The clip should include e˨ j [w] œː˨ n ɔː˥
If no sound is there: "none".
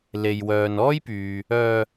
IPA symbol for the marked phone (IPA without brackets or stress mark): w